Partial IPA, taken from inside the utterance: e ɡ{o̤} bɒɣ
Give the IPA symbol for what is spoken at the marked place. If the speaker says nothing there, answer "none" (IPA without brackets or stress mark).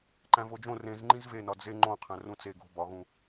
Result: o̤